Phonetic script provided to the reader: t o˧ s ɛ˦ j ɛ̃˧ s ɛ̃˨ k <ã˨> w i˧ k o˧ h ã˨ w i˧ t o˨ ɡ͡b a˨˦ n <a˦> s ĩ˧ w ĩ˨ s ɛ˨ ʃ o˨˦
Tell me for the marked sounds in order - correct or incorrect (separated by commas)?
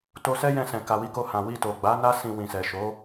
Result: incorrect, correct